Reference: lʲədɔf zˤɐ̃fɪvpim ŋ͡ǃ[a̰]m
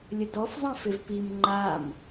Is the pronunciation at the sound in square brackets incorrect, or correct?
incorrect